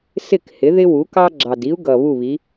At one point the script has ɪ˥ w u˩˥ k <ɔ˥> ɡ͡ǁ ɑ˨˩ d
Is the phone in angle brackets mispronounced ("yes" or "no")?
yes